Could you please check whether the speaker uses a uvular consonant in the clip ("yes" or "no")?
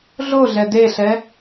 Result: no